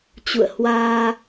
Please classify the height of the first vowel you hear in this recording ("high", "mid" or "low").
high